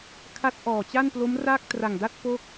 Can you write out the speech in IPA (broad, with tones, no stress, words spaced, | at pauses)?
kʰa˦˥t̚ʔɔː˨˩t͡ɕa˥˩nplo˦˥m ra˥˩k̚tra˨˩ŋda˥˩t̚ po˥˩k̚